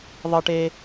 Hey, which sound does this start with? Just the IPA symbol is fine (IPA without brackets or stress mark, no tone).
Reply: ðˤ